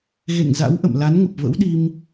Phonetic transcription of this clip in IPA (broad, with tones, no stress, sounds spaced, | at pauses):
ɣ ḛ˧˨ ŋ z a̰˧˥ w ʔ ə̰˧˨ m l a˨˦ n ŋ ə˨˩ p̚ v ə̰˧˥ w ɗ i˧ m